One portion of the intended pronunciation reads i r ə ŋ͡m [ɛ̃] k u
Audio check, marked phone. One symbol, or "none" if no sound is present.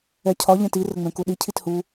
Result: ɛ̃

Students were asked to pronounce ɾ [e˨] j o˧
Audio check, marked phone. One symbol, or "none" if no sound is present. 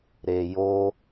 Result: e˨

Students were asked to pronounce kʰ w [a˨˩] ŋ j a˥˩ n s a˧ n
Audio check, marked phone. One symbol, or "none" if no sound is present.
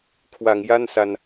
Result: a˩˦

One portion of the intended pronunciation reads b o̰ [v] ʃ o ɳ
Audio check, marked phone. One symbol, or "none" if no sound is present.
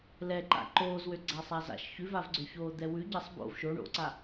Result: v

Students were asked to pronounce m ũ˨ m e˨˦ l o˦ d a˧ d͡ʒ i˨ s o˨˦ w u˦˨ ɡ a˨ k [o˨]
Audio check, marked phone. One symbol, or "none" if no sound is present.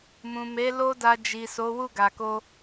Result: o˧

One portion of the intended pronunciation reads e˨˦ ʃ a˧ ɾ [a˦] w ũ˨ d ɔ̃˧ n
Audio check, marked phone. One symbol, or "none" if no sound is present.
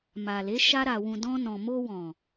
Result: a˨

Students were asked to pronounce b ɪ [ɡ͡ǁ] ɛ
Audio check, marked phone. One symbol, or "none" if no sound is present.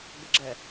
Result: ɡ͡ǁ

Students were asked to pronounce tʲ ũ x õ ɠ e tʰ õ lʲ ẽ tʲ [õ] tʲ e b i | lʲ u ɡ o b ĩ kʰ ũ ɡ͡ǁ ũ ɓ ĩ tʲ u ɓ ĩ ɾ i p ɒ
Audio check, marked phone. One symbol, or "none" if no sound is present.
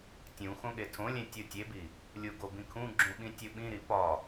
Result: o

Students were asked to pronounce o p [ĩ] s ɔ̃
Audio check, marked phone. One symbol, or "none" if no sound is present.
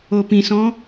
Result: ĩ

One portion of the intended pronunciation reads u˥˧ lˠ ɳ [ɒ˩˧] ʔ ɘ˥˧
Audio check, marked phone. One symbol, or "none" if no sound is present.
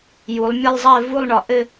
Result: ɒ˩˧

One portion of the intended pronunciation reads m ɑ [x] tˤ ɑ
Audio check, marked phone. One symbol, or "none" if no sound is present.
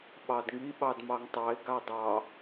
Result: ŋ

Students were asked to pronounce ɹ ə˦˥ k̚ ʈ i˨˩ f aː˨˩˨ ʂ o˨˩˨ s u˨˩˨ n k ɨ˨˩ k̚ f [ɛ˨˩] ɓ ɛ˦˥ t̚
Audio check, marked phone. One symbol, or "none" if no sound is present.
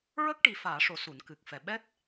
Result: ɛ˨˩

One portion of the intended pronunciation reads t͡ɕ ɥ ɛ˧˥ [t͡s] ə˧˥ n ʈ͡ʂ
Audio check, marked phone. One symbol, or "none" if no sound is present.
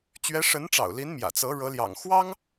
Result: ʂ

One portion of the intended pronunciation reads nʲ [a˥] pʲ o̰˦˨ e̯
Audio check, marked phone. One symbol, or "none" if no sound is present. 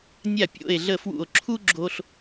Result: a˦˨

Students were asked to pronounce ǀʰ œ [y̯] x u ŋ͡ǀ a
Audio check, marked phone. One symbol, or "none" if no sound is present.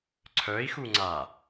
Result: i̯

